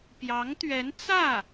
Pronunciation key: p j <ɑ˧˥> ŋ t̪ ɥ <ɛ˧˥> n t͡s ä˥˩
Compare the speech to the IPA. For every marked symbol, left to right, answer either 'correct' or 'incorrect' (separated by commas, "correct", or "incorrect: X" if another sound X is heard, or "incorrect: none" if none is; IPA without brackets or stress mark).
correct, correct